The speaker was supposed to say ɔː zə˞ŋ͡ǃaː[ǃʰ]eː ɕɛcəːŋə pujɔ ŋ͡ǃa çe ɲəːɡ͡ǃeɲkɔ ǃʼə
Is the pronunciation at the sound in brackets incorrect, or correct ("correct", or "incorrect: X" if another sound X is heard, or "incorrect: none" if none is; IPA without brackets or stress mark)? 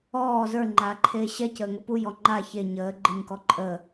correct